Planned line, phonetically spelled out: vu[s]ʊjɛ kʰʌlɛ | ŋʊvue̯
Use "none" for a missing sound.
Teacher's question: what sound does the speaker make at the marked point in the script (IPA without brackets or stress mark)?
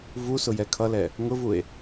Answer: s